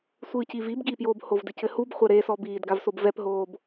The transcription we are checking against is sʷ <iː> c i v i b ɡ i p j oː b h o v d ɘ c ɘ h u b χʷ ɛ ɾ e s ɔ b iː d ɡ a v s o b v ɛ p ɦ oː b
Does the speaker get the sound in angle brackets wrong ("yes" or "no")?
yes